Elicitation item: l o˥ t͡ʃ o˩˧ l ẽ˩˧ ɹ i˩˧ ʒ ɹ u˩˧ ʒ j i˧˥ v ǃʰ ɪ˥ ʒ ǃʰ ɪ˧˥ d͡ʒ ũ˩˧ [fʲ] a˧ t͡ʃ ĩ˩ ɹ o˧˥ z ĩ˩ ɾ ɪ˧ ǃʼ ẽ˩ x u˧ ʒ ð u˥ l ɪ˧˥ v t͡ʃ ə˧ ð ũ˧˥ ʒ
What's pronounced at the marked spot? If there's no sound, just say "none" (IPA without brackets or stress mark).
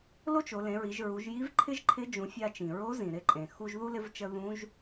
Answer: fʲ